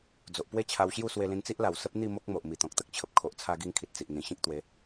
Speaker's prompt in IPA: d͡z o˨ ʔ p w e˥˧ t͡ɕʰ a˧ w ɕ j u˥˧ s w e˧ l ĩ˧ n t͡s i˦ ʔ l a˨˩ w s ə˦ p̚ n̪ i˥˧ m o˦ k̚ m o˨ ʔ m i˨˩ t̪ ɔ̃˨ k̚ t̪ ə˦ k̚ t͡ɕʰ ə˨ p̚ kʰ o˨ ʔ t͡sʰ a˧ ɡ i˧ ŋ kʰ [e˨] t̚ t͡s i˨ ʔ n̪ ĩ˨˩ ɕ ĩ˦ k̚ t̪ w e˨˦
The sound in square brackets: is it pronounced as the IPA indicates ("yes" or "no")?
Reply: no